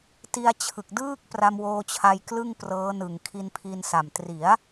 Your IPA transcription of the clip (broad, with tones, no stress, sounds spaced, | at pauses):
t i˧ a̯ t͡ɕʰ ɯ˨˩ k̚ d ɯː˥˩ k̚ p r a˧ m w oː˧ t͡ɕʰ a˧ j k l ɯ˥˩ ŋ p r ɤː˦˥ n ɯ˨˩ ŋ kʰ i˧ n pʰ i˧ n s a˨˩ m t r i˩˦ a̯